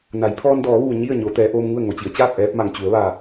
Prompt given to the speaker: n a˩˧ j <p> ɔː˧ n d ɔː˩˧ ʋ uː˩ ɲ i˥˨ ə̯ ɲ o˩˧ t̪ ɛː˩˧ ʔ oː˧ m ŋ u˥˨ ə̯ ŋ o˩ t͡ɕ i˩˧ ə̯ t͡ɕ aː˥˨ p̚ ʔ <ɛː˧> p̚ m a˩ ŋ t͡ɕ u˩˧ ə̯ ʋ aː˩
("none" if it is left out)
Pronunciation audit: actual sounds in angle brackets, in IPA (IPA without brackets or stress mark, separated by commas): pʰ, ɛː˧